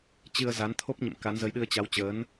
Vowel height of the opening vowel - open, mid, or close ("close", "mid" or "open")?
close